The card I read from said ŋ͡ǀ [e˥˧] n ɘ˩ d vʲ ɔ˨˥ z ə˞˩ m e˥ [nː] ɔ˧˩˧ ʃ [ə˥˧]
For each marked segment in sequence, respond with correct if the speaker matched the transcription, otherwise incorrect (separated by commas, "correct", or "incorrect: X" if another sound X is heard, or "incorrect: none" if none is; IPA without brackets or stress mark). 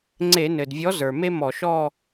incorrect: e˧˩˧, incorrect: m, incorrect: ɔ˥˧